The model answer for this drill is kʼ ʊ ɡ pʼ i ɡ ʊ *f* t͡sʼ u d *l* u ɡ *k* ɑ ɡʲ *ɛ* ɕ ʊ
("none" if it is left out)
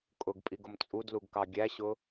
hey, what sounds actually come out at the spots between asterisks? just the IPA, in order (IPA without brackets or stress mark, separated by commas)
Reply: m, l, k, æ